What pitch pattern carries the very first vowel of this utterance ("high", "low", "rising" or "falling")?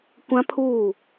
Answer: high